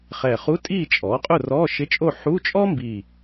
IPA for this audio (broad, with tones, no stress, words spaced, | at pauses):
χɛ˨˩χu˧˥˧tʼiː˥˨ t͡ʃʼɔː˩˥qʼʊ˥˨ rɔː˧˥˧ʃɪ˧˥˧t͡ʃʼo˥˨ ħu˧˥˧ t͡ʃʼɔː˥mbi˨˩